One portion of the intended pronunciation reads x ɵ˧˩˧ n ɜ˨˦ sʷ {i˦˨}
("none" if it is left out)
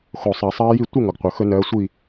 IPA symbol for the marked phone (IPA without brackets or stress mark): i˦˨